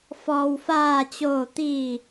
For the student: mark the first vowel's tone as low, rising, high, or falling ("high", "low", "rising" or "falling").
low